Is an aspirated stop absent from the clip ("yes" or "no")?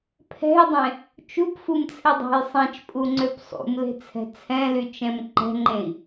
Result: no